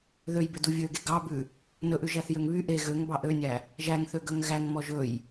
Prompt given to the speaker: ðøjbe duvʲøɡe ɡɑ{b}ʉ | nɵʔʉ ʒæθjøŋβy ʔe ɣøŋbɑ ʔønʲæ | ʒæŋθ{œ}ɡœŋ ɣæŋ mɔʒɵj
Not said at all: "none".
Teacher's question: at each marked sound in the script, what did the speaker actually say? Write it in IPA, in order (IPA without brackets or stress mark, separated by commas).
b, ø